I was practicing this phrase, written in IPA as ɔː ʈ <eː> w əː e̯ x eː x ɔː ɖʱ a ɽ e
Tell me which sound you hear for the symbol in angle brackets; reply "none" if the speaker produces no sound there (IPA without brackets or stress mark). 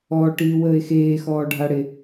iː